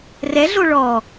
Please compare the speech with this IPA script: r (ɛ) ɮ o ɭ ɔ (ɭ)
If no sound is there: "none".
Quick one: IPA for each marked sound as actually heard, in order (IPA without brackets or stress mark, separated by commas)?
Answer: ɛ, none